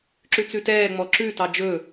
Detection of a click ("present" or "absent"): present